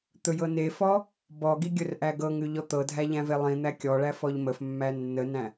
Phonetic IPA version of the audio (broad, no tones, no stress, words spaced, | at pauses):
t̪ɵjɤnefɔ | bɔɡi ɡʲɵrʔæɡɤŋʉ ʎɔt̪ɤdʱæ ʎæ̃velˠĩn̪æ kʲɔɭæ fɔʎməfmːæ nːənæ̃